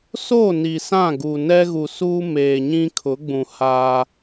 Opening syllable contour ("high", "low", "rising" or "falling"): falling